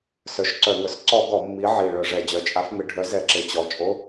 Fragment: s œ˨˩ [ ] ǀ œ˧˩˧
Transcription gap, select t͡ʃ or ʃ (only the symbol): ʃ